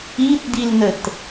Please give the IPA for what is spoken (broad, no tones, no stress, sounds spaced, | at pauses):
i t d i l n ə t